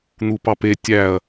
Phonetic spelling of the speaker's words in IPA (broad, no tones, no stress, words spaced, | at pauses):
n̪upɑpe tʲæɐ̯